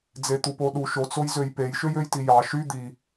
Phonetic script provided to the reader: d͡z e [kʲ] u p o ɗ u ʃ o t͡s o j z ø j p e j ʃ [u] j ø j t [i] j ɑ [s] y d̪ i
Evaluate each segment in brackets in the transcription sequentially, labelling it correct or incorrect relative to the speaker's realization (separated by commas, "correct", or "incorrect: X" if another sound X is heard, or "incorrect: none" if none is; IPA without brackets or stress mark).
incorrect: t̪, incorrect: ø, correct, incorrect: ʃ